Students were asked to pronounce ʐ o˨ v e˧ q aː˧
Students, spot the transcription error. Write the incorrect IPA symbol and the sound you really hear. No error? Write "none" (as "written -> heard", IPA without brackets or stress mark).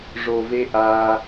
q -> ʔ